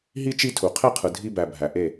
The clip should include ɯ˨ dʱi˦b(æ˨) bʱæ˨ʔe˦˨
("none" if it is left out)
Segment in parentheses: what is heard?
æ˨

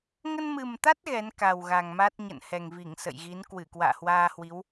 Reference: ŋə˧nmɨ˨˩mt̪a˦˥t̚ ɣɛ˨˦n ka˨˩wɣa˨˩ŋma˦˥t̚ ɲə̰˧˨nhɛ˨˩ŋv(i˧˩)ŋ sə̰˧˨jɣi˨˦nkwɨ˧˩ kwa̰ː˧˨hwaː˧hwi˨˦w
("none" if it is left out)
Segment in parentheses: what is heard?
i˧˩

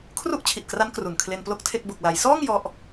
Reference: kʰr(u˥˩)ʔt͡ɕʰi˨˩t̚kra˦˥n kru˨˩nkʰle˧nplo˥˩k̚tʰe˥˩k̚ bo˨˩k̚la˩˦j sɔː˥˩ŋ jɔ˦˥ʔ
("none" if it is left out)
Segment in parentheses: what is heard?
u˥˩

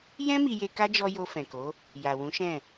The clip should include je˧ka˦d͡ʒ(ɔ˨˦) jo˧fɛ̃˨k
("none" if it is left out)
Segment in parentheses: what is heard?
ɔ˧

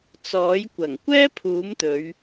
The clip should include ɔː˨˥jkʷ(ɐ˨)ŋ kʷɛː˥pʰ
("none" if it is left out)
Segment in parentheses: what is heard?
ɐ˨˩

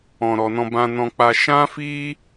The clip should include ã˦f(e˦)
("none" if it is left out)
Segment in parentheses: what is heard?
i˦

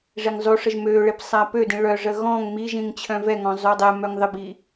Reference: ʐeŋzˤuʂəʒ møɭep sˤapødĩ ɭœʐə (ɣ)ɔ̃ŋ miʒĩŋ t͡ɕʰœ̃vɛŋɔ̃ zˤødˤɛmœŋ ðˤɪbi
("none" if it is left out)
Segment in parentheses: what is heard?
ɣ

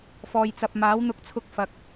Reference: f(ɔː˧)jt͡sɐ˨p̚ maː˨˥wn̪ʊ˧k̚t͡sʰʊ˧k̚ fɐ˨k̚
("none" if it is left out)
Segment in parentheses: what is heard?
ɔː˨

